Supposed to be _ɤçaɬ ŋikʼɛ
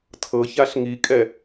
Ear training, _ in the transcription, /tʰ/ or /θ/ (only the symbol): tʰ